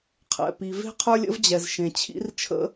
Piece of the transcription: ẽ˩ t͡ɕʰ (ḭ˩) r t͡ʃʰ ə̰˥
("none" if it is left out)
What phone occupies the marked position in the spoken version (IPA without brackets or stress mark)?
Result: ḭ˥